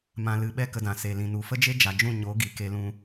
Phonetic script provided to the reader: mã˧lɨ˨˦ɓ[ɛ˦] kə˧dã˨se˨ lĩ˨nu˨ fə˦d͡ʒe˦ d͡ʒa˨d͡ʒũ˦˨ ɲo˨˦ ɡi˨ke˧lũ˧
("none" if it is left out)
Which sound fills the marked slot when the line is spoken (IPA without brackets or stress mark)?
ɛ˦